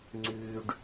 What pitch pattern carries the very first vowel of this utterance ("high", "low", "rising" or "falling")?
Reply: low